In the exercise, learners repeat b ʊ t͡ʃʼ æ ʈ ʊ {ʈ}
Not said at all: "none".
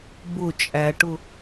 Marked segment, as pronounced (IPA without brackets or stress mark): none